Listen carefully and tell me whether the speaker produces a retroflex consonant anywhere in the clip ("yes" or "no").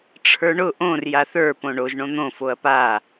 yes